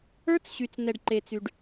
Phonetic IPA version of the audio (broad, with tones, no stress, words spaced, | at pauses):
ə˞˧˥t͡sɕy˩t͡snɛ˩ɖ ǃe˩t͡sy˩ɖ